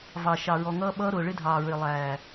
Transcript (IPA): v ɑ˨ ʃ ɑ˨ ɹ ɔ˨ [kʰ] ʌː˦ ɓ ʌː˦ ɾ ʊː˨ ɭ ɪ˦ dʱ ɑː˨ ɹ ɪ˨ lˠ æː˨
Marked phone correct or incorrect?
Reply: incorrect